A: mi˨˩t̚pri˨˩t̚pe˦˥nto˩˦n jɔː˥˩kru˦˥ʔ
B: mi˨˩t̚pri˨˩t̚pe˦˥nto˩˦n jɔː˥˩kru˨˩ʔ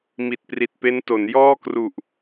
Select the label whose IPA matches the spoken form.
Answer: B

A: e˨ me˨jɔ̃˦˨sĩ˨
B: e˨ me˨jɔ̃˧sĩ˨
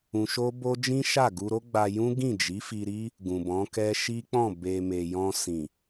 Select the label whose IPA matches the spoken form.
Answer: B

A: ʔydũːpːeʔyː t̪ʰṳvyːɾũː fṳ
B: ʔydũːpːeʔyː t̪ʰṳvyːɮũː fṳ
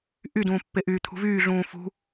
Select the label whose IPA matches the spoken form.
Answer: B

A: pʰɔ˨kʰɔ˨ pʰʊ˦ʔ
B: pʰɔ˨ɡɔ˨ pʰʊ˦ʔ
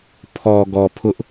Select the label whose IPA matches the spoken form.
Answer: B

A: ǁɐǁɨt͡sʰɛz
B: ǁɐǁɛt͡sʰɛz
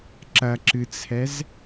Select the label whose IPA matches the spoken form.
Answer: A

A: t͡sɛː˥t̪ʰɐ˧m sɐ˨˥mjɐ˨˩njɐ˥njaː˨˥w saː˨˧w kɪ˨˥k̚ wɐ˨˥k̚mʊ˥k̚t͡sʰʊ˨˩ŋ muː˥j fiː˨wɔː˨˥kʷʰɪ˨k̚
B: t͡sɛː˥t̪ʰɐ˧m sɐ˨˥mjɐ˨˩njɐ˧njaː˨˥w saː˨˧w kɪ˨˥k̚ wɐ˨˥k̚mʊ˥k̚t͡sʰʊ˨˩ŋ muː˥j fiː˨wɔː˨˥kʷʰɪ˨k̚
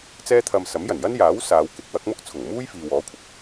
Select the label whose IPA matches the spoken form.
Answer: A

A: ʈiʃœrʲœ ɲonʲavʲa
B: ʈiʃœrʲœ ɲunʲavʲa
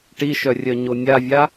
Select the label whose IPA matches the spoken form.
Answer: A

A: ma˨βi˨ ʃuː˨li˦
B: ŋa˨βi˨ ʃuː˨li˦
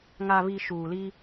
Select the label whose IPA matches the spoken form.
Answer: B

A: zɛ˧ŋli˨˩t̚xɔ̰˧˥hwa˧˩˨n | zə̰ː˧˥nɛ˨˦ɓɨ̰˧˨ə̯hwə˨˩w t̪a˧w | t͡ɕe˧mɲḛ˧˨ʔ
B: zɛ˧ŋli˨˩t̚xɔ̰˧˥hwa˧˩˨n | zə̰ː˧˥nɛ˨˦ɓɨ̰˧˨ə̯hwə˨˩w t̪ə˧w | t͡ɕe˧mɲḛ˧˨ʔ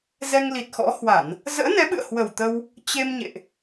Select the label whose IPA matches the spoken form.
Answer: B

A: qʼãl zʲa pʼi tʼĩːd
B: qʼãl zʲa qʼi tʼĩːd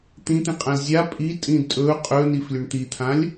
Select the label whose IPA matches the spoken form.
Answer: A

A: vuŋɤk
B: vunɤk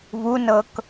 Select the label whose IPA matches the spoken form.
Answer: B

